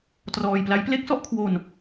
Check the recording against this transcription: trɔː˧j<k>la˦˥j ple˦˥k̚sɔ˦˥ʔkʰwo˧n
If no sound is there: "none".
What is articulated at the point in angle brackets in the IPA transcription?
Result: p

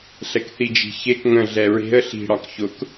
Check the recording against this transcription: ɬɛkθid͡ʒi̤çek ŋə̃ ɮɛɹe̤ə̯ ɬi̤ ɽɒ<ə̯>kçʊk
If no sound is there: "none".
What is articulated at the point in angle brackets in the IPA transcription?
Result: none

